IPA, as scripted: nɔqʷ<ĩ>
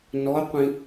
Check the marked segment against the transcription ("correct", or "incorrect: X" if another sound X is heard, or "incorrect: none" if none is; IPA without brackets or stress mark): correct